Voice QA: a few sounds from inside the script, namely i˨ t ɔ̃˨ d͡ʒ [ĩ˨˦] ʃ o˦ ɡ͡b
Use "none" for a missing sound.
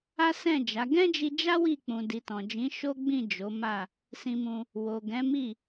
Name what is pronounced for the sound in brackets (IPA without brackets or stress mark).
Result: ĩ˨˦